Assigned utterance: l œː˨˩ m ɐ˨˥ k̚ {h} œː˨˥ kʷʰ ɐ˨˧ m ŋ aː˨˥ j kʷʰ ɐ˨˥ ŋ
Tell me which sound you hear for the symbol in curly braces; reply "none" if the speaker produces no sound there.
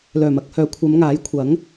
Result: h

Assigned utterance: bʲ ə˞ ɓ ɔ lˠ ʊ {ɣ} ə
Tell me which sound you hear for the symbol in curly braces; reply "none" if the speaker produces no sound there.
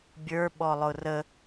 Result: r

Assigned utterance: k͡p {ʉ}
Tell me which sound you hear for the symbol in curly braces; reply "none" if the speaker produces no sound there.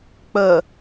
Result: ə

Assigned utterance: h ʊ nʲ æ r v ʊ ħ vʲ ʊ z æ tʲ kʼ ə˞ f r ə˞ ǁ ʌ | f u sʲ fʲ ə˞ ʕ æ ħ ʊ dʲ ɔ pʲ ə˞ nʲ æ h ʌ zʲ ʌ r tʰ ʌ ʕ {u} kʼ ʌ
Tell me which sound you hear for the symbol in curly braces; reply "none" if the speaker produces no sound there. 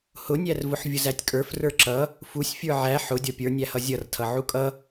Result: u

